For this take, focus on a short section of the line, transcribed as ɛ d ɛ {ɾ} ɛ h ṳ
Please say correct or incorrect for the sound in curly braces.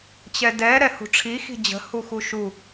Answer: correct